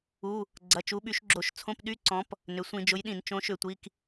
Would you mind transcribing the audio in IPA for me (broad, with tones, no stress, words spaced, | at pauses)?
u˩˧˩ | ɡ͡ǀɐ˩˧˩t͡ʃu˨˦ɓy˨˦ʃɡ͡ǁo˧˩˧ʃ t͡sʰõ˧˥˧pɗy˧˥˧ǀɔ̃˨˦p | nʏ˩˧˩sʷĩ˧˩˧d͡ʒʊ˨˦jɗĩ˧˩˧n t͡ʃõ˨˦ʃʏ˧˩˧tʷi˩˧˩k